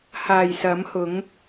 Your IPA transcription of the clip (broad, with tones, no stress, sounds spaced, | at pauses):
h aː˨˩ j s ɐ˨˥ m h ʊ˨˥ ŋ